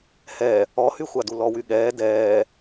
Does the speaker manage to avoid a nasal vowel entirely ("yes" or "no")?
yes